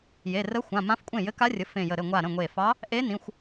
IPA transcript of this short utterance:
j e˩˧˩ r ə˧˥ xʷ ã˩˧˩ m ã˧˥ f kʷʼ ẽ˥˩ j ɘ˧˥ k a˧˥ rʲ ə˩˧˩ f ẽ˧˩ j ə˧˩ ɾ ɘ˥˩ ŋʷ a˧˩ ɾ ə̃˩˧˩ ŋʷ e˧˩ f ɑ˧˥ | ʔ e˧˥ n ĩ˩˧˩ xʷ

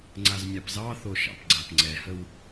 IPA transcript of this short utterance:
ŋ͡ǀ a z mʲ a p z ɑ θ o ʃ ɑ̰ p ɡ͡ǀ a p ŋ͡ǀ ɛ h ə w

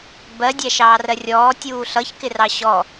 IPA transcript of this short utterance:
b ɜ dʲ æ ʃ ɑː r ɜ rʲ ɔː tʲ uː ɬ ʌ ç k ɪ r ɑ ɕ ɔ

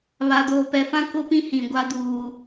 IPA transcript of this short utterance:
β a˨ d oː˨ p ɛ˨ f ã˦ k ʊ˦ p ĩ˦ h ĩ˨ ɡʷ a˦ d uː˦

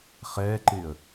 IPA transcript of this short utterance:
χ ɛː ǃ ɪː ə̯

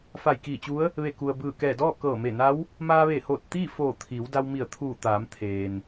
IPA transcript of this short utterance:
f a˧˩ j k iː˧˩ t͡ɕ u˧˥ ə̯ | ʋ e˧˩ k u˩ ə̯ b ɯː˧˩ k ɛː˧˩ d ɔː˥˨ k ɤː˧˩ m e˧˩ n a˧˥ w | m aː˧ ʋ e˧˩ h oː˧˩ t̚ t̪ iː˥˨ f oː˧˩ t̪ʰ iː˩˧ w d a˧ w m i˧˩ ə̯ t̪ʰ uː˧˩ t̪ aː˩˧ m t̪ʰ eː˩ n

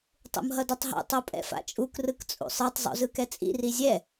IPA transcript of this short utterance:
tˤ ṵ m ɦ ʌ d o tˤ ɦ ṵ tˤ o pʼ ɛ̰ f a̰ t͡ʃʼ u k r ɯ k t͡sʼ ṵ sˤ ɯ tˤ zˤ ṵ z ɯ k ɛ t͡sʼ ḭ r i zʲ ɛ

